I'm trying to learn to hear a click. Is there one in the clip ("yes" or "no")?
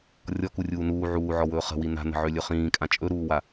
no